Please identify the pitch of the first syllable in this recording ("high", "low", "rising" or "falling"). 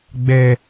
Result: high